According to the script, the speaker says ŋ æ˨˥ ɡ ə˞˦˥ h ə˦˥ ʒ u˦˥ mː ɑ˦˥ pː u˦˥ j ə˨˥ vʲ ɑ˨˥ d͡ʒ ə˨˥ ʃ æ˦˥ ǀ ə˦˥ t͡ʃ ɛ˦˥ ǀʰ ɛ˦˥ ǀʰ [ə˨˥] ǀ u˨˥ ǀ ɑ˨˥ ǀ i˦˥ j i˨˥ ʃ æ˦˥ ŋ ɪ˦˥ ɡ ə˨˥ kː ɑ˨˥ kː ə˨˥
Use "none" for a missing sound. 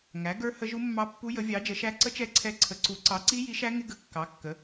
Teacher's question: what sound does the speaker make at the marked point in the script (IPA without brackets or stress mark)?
ə˨˥